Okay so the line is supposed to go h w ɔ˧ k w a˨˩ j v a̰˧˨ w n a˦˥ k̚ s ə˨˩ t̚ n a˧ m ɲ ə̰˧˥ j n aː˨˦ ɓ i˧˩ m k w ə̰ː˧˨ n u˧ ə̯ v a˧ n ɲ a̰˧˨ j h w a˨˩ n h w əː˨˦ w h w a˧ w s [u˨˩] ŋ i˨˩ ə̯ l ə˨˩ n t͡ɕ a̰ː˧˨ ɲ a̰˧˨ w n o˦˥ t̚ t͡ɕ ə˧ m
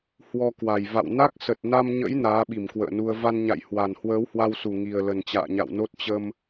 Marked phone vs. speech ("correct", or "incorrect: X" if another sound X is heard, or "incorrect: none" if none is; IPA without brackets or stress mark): correct